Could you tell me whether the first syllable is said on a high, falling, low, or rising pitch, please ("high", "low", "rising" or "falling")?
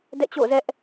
falling